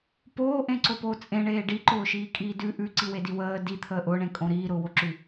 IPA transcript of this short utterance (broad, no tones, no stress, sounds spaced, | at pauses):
p oː ʔ ẽ ǀ o p oː t͡sʼ ẽ ɳ eː ɖ i ǃ ʊː ʃ iː kʼ iː d ʉ ʔ ʉ ǀ i w e d i w əː d i t̪ʰ əː ʔ ʊ ɳ ẽ kʼ õ ɾ iː ɾ ʊː w o ǁ ʉ